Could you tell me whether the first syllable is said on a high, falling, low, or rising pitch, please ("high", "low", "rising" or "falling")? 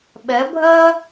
rising